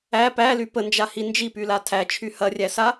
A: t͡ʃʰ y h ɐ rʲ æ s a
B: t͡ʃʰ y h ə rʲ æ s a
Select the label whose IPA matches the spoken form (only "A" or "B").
A